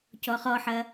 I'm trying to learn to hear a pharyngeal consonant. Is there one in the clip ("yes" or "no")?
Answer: yes